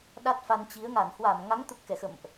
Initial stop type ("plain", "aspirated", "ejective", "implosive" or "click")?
implosive